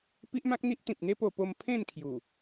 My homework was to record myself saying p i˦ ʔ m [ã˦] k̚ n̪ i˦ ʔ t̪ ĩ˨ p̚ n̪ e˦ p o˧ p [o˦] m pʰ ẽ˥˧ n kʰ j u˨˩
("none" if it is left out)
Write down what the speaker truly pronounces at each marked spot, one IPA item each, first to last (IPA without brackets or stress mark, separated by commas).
ã˦, o˧